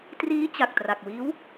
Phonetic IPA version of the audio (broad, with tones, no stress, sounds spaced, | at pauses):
t r iː˦˥ t͡ɕ a˨˩ k̚ t r a˨˩ k̚ w iː˦˥ w